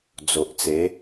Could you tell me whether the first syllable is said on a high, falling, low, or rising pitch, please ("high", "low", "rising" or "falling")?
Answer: low